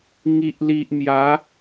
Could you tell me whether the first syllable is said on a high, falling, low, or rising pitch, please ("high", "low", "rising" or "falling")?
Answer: low